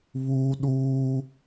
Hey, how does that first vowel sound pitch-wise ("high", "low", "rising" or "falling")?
high